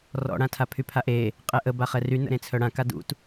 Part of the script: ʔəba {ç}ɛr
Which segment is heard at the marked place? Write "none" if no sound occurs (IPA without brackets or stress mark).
χ